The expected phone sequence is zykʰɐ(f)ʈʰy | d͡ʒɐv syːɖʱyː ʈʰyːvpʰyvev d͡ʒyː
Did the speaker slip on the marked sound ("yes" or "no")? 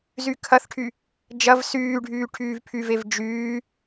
yes